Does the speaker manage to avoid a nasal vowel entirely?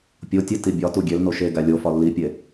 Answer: yes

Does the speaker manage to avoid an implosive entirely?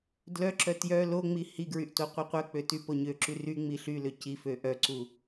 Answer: yes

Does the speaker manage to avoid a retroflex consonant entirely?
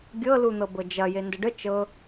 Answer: no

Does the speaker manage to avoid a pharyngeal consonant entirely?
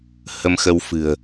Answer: yes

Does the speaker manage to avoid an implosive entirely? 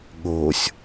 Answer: no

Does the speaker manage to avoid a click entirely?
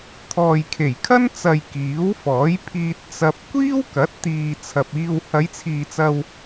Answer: yes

